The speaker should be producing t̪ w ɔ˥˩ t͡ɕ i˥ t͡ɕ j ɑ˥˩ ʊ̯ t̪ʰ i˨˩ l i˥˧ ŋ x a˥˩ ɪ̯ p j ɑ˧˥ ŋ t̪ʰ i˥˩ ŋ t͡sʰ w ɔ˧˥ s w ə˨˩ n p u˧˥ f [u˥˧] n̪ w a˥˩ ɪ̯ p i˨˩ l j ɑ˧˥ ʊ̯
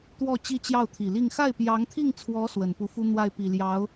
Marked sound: incorrect: u˥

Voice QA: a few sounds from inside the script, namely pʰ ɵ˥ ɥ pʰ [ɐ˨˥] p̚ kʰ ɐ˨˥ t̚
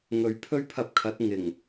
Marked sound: incorrect: ɐ˧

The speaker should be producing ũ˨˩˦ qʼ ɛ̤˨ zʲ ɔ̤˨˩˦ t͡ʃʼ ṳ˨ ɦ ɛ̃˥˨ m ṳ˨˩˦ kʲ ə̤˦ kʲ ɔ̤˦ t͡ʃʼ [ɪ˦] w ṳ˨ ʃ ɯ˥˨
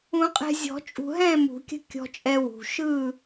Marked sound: incorrect: ɛ˦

